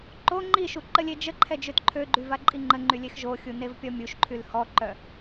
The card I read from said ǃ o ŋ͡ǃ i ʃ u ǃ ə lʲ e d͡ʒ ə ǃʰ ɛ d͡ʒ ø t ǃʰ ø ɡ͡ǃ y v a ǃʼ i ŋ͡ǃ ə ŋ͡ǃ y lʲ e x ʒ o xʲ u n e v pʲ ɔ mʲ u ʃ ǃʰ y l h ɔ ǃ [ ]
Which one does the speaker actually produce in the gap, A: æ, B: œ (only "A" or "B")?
B